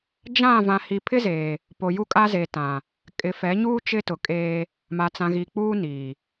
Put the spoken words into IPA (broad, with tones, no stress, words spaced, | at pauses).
d͡ʒã˦˨ vã˨hi˨ pʰɪ˦zeː˨ | po˨ju˦kʼa˦zeː˨ tã˨ | kʼɪ˨fɛ˨˦ɲuː˦ t͡ʃɪ˦tʊ˨kʼeː˦ | ma˨t͡sã˨ɣi˨k͡puː˦ niː˨